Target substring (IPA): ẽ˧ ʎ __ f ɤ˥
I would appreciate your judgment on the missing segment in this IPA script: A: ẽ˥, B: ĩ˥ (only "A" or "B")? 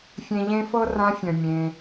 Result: A